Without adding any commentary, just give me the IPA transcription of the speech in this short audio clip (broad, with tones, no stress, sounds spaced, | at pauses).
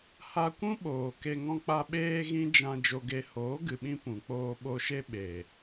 h a˧ kʷ ũ˦ ɓ oː˨ k e˧ ŋ ɔ̃˦ k͡p a˦ ɓ eː˦ ɣ ĩ˦ d͡ʒ ã˧ d͡ʒ o˧ ɡ e˧ h oː˨˦ ɡ ɨ˨ ɓ ĩ˧ p ũ˨ k͡p oː˧ ɓ o˧ ʃ e˦ ɓ e˨